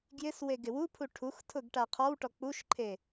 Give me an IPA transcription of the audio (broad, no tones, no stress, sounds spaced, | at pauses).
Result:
ɡ j ɪ s w e ɡ ɪ w u pʰ u ʈʰ u x tʰ ʊ ɡ ʈ a qʰ ɔ w ʈ ɔ k͡p u ʃ ǃʰ e